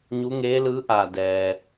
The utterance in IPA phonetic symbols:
ɲ u˧˥ ŋ eː˧˥ l ɯː˧˥ ʔ aː˧˩ d ɛː˩

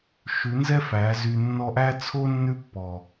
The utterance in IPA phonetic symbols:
ʃ ʉ˨˦ n z ɛ˦ f æ˨˦ z y˧ nː ɔ˧ ʔ æ˦ t͡sʰ o˦ nː ʉ˦ pː ɔ˨

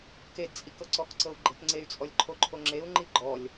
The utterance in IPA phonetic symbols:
k e d t͡sʼ i k ɤ ǀ ɔ k ǀ ɤ u̯ ɡ͡ǃ e̤ k ŋ͡ǀ e y̯ t͡sʼ ɔ lʲ ǃʰ o ǃʰ o ŋ͡ǁ e u̯ ŋ͡ǃ i ɡ͡ǃ ɔ lʲ

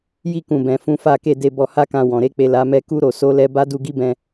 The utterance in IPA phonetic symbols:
j i˧ k ũ˨ b ɛ̃˨ f ũ˨˦ f a˦˨ k e˧ d e˧ b ɔ˧ h a˦ k ã˧ w ɔ̃˨ ɾ e˧ k͡p e˨ l a˨˦ m ɛ˧ k u˧ ɾ o˨ s o˨˦ l ɛ˧ b a˦ d u˧ ɡ i˦ b ɛ̃˧

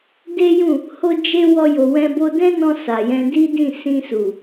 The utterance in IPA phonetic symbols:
d e˦ j ũ˦˨ | h o˦ d͡ʒ e˦ w ɔ˦ j o˧ w ɛ̃˦ b o˦ d ɛ̃˦ n ɔ̃˧ s a˨ j ɛ̃˧ d i˦ d ĩ˦˨ s ĩ˧ s u˨

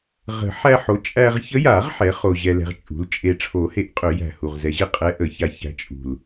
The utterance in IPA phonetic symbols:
ʁ ə̤˨˩˦ ħ æ˧ ħ o˩˥ t͡ʃʼ æ˧ ʁ ç ə˧˥ j a˨˩˦ ʁ ħ ɛ˩˥ χ o˧ ʑ ɛ˧ l ɛ̤˧ ʁ t͡ʃʼ ṳ˩˥ l t͡ʃʼ e˧ ʈ͡ʂʰ o˨˩˦ h e˩˥ ʔ qʼ ø˨˩˦ j æ̤˨˩ h u˨˩ ʁ z ɛ˨˩˦ ʑ e˥˨ qʼ ɛ˧˥ ʔ ə˨˩˦ ç a˧ ç æ̤˧˥ t͡ʃʼ ṳ˨˩ l

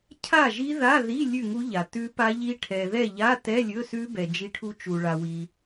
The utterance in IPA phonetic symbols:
cʰ a˥˨ ʒ i˦˥ ð a˧˥˧ ð i˧˥˧ lʲ ʉ˥˨ ŋ u˦˥ ʎ a˨ t ʉ˦˥ p a˦˥ ʎ i˦˥ ʈʰ ɛ˨ ð ɛ˥˨ ʎ a˧˥˧ t ɛ˧˥˧ lʲ ɵ˧˥˧ s ʉ˦˥ b ɛ˨ d͡ʒ i˦˥ ʈʰ u˦˥ t͡ʃ u˨ ɭ a˨ w i˨

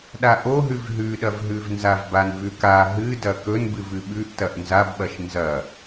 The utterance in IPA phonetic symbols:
ɗ a ʔ o ɦ ʉ v ɦ ʉ ɗ ɐ v ɦ ʉ v n z a v b a n v ʉ k a ɦ ɨ d ɐ k ɵ n b ɨ v ɨ ɓ ʉ ʔ t ɐ ʔ n z a b ɓ ɐ ʃ n z ɐ

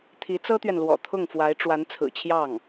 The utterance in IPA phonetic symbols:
t̪ʰ i˧˥ t͡s ɤ˥ t̪ ɥ ɛ˨ n l w ɔ̰˨˩ t̪ʰ ʊ˥˩ ŋ f w a˧˥ ɪ̯ ʈ͡ʂ w a˧˥ n t͡sʰ ɹ̩˨˩ t͡ɕʰ j ɑ˥˩ ŋ

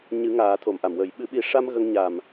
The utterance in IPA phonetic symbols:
ɲ ɨ˨˩˦ ŋ aː˨˩˦ t̪ʰ o˨˩˨ m ʔ a˨˩˨ m w əː˨˩˦ j ɓ ɨ˨˩˦ ɓ i˨˩˦ ʂ a˧ m ɣ ə˧ ŋ ɲ a˨˩ m

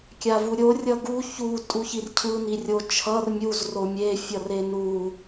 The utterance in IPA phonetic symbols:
kʲ a v u ɾʲ o rʲ ʌ ɡ u ç u tʼ u ç i r cʰ ɯ n i rʲ o t͡ʃʰ ʌ r mʲ u z r o mʲ e fʲ ʌ r e n u

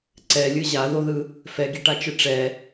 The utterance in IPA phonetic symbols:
ǀ ɛ lʲ ɯ ʑ a ð o ð ɯ | f ɛ ɡ i ʈ a t͡ʃ ɯ ʈ͡ʂ ɛ

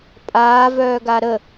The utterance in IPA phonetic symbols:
pʼ aː v œː ɡ a ɾ ə

